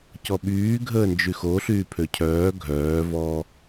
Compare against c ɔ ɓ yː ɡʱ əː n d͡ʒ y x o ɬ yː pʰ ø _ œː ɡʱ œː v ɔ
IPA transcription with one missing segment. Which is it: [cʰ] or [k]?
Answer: cʰ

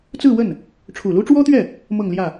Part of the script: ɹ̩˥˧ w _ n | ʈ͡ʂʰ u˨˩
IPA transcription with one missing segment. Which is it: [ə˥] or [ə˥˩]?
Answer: ə˥˩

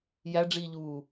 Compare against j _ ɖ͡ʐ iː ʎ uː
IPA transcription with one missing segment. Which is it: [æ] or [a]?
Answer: æ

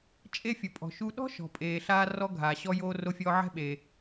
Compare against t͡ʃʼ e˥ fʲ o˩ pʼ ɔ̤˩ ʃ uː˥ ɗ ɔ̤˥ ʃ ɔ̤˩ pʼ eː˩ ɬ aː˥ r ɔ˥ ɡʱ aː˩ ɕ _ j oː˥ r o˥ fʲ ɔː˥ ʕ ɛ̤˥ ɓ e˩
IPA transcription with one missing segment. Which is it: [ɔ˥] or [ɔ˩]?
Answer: ɔ˥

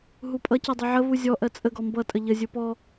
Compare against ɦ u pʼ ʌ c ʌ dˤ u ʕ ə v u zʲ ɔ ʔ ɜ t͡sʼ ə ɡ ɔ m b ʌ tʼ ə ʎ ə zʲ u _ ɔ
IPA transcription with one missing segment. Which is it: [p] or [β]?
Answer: p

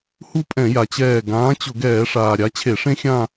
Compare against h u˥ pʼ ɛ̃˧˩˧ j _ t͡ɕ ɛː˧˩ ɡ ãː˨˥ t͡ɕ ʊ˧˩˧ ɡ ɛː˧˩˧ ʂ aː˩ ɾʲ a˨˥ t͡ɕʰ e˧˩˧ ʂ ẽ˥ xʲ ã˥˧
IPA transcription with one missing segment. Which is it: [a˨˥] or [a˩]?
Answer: a˩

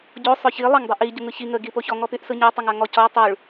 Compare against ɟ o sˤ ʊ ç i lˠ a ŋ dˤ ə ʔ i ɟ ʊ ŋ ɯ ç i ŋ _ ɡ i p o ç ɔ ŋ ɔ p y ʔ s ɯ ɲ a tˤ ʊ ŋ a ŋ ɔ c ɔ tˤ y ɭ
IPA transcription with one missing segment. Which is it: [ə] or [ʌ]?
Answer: ə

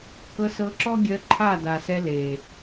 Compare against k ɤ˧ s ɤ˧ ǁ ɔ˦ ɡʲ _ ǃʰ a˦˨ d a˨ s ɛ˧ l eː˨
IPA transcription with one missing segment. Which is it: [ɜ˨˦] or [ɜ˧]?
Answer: ɜ˧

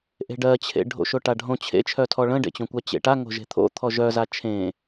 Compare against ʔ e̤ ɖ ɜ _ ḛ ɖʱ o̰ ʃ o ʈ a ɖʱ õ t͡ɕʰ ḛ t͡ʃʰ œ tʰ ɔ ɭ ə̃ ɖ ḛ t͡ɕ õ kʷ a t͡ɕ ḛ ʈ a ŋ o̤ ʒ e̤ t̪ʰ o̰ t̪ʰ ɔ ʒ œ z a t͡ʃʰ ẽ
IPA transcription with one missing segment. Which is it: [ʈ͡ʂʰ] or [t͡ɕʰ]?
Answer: t͡ɕʰ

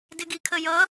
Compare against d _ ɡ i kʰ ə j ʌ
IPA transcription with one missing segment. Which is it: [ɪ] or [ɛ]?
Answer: ɪ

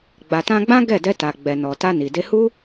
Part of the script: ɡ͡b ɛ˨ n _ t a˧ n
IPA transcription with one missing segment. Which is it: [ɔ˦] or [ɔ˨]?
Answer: ɔ˨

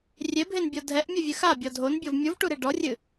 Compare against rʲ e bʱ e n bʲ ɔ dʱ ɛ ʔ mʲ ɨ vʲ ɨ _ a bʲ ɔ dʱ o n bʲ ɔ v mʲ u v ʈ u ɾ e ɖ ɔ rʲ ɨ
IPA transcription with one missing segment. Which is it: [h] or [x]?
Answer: x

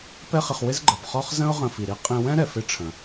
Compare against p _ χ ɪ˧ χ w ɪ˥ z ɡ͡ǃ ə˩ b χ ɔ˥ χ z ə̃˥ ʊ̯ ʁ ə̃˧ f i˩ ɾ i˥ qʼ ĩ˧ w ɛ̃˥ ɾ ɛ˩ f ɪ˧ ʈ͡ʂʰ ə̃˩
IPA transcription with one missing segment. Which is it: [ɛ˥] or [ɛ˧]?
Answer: ɛ˥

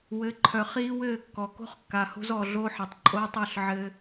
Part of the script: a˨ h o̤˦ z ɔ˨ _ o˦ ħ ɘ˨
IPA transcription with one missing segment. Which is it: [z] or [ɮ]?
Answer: ɮ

